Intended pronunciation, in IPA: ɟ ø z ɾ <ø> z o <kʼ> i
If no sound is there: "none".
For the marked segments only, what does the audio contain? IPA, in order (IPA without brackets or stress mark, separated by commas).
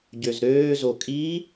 øː, kʼ